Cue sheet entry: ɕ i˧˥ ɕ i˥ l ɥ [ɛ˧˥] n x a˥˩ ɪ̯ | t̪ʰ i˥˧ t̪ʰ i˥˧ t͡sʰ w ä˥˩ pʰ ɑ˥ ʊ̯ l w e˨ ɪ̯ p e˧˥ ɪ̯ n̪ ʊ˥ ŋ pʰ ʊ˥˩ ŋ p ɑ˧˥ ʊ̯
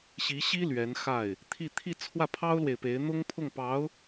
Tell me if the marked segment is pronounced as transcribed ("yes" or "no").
yes